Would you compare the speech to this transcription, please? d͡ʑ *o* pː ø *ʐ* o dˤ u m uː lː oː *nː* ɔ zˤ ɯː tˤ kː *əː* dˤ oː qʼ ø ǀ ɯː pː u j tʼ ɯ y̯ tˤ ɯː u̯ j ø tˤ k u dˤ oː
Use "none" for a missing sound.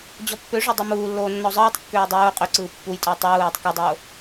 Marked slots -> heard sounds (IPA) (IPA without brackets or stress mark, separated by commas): ɔ, ʐ, nː, øː